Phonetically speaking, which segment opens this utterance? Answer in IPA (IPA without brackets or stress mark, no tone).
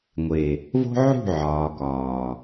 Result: ŋʷ